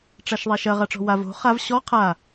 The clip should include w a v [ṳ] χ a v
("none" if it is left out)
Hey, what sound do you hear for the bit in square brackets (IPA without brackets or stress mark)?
o̤